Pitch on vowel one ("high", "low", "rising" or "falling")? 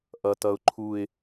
low